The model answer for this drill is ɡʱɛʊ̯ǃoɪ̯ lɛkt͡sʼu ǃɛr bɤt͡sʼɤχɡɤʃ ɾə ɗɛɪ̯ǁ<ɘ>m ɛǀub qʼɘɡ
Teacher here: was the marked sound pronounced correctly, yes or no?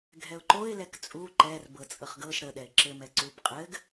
yes